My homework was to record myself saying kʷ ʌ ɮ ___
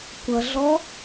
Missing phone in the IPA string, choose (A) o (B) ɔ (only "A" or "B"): B